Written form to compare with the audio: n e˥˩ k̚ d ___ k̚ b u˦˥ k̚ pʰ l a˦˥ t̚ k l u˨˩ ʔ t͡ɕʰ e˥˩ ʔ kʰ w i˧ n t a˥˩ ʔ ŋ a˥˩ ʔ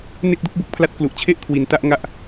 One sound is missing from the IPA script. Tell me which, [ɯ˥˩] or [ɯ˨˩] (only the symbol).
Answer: ɯ˥˩